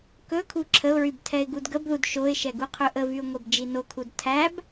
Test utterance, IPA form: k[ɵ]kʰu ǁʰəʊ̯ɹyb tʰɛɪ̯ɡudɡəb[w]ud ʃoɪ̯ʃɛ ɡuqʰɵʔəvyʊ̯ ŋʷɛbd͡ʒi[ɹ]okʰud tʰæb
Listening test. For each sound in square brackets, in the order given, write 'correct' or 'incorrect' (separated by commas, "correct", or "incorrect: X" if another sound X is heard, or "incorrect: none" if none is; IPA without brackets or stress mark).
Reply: correct, incorrect: ð, incorrect: n